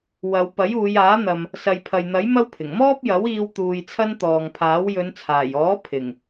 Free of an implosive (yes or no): yes